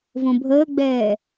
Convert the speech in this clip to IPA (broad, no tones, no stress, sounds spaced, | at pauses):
v õ bʱ əː ɡ͡b ɛː